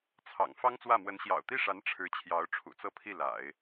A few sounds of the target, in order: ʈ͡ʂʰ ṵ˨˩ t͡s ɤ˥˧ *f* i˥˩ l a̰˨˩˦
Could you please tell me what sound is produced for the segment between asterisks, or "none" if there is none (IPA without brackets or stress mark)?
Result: pʰ